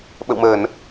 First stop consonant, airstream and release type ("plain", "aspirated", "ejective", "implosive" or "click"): implosive